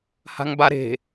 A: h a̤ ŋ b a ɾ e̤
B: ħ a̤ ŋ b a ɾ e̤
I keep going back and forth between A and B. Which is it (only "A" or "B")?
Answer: A